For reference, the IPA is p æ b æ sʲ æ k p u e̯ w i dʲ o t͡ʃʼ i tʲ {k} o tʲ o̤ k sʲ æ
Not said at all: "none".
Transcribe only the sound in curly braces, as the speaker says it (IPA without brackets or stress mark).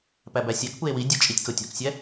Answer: k